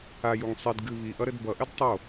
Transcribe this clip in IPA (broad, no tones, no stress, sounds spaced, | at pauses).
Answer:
a j u ŋ sˤ i d ɡ ɨ β i ʔ ʌ ɾ ɘ d b ʌ ʔ ɘ d tˤ o